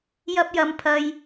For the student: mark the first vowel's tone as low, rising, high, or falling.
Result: high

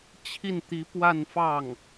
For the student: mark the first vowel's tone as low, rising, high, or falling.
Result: falling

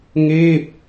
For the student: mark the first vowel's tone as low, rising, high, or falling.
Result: falling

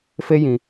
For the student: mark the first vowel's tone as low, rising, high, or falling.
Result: high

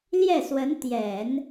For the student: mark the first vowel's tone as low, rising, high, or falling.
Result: falling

